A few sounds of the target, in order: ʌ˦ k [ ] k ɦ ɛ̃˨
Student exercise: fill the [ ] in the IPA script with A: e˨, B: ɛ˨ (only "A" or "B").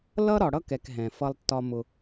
B